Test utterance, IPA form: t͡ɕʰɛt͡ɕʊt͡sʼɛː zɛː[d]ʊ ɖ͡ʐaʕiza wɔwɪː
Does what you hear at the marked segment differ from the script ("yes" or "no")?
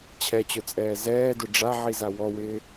no